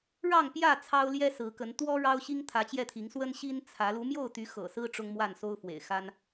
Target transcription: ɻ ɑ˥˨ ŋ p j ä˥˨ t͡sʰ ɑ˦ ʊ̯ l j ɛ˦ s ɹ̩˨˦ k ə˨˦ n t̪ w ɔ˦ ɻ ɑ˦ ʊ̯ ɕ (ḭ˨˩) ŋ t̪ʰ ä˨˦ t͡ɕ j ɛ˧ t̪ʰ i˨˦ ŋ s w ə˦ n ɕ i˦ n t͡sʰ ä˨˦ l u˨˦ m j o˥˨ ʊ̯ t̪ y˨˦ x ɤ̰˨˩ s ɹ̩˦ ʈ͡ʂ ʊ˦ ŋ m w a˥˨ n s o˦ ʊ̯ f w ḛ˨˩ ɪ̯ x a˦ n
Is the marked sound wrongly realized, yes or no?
yes